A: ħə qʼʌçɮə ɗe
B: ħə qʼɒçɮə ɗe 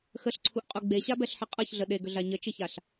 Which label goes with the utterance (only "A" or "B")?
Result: A